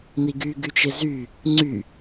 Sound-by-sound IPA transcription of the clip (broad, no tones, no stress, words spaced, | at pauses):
niɡyɡyt͡ʃɪ zy | ŋ͡ǀy